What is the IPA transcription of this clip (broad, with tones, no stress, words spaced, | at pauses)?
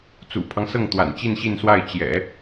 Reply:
t͡sṵ˨˩pʰɑ˦ŋsɤ˥˩ŋ t̪wa̰˨˩nt͡ɕi˥˧nɕi˥˧nswa˥˩ɪ̯ t͡ɕjɛ̰˨˩˦